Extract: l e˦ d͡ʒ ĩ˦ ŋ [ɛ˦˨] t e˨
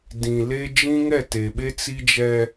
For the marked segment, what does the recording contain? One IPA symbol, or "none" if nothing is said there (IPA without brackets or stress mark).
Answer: ɛ˦˨